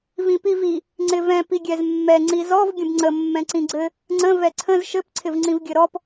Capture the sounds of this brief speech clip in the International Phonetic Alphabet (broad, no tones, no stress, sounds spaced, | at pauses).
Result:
v ĩ p i v i | ŋ͡ǀ ɪ v ɛ̃ p i ɡʲ ɛ z mː ɛ ŋ͡ǀ i z ɔ v ɡʲ ə̃ b ŋ͡ǀ ə mː ɛ̃ ǀ ĩ ɡ͡ǀ ɘ | ŋ͡ǀ ə̃ v ɛ ǀʰ ə̃ z ʃ ɘ p ǀʰ ɪ v ŋ͡ǀ ĩ v ɡʲ ɘ ɾ ɔ p